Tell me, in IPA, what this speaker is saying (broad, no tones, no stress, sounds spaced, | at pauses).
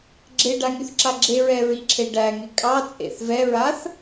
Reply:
ɡ͡ǁ e ɖ a ŋ y θ ǁ a ɡ͡ǁ e ɹ ɛ ɹ i ǁʰ e ɖ æ ŋ e kʼ ɑ t͡sʼ ḛ θ v ɛ ɹ a θ